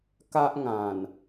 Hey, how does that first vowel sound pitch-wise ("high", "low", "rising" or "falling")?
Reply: high